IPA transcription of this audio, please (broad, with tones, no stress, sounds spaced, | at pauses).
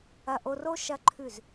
ɐ˧ ʔ o˧ r o˦ ʃ ɐ˦ ǃʰ ʉ˦˨ z